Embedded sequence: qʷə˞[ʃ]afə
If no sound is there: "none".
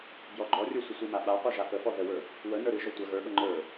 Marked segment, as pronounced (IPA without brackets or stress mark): ʒ